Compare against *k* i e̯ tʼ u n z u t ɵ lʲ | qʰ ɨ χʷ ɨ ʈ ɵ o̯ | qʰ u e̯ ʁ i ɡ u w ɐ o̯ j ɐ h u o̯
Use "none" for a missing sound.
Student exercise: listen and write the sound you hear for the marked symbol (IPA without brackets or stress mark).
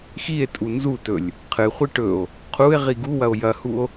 x